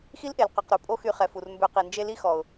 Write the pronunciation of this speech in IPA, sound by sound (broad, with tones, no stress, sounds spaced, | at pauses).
x i˦ l ʔ e˨ l q œ˨ q ɾ u˨ pʼ o˦ x y˧ χ ɛ˨ f u˨ r m b ø˧ q i˨ n d͡ʒ e˦ l i˦ x ɔ˨ ʊ̯